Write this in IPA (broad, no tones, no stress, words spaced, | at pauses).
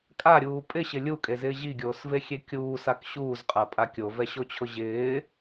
kʼaɾʲuː pʼɪɕɪ lʲukʼezɪː ʑiɡʲoːsvexʲe kʲuːsak ɕuːzqʼapʼa kʲovɛɕot͡ɕʰʊ ʑɪː